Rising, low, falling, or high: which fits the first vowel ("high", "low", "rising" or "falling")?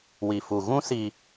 low